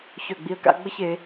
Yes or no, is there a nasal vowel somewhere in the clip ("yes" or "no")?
no